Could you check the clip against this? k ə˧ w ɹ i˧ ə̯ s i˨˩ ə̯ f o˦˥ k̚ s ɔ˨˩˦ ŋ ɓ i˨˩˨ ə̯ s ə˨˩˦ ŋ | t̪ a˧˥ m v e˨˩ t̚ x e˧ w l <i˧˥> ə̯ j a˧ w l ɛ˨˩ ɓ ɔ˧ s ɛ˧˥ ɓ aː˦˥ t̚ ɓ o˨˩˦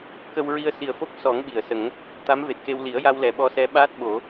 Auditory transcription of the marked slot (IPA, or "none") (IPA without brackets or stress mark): i˨˩˦